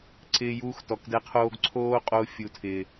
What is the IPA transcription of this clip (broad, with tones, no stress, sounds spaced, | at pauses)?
ǀ ɪː˧ j uː˧ x t ɔ˨ k d ɛ˧ qʰ oː˧ ɡ ǀʰ oː˦ qʼ o˧ fʲ u˨ tʰ ɪː˨